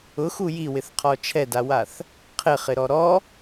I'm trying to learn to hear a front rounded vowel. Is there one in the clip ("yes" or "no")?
no